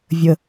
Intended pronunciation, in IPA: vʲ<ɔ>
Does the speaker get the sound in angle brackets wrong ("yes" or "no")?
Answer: yes